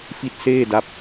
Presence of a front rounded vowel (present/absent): absent